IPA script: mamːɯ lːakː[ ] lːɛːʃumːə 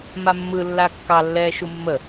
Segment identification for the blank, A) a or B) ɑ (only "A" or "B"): B